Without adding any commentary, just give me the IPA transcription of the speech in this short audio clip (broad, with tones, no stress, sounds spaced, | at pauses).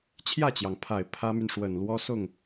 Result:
t͡ɕʰ j ä˥˩ t͡ɕ j ɑ˩ ŋ pʰ a˨˩ ɪ̯ pʰ ä˥ m y˨ n ʂ w ə˨˩ n l w ɔ˥ s ʊ˥˩ ŋ